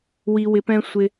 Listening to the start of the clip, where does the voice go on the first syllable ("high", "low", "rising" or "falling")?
high